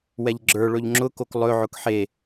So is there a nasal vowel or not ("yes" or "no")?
no